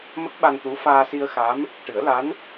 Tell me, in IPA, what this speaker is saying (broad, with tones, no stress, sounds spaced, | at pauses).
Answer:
m ə˦˥ k̚ ɓ a˧ n t̪ u˧˥ f aː˧ s i˧ ə̯ x a˧˥ m | ʈ ɨ˨˩˦ ə̯ l a˧˥ n